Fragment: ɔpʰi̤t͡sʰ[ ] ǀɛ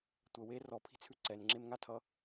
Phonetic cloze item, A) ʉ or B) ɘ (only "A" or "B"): A